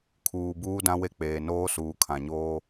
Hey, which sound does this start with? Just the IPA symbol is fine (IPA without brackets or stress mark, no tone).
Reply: kʰ